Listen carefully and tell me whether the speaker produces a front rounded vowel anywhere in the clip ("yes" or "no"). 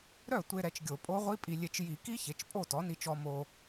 yes